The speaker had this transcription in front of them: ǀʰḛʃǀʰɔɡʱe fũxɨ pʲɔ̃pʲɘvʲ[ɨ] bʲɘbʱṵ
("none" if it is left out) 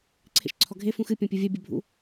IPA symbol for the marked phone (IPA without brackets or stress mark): ɛ